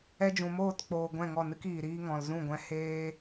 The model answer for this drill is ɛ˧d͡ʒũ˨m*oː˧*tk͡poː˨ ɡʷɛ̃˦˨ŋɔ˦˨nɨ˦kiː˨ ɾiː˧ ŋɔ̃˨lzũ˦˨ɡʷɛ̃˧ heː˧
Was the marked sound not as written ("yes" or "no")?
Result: yes